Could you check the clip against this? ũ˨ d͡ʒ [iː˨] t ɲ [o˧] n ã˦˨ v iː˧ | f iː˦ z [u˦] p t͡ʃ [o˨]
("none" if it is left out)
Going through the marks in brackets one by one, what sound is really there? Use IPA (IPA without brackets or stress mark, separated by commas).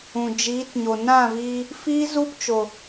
iː˨˦, o˨, u˦, o˨